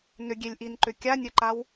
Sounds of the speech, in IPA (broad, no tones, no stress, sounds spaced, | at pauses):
n ʏ ɡʲ e lʲ ʔ i n ǃ ʏ kʲ a nʲ œ ǃ a w